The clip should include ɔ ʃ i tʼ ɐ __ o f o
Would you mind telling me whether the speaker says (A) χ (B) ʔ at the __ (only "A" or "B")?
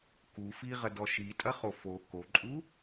A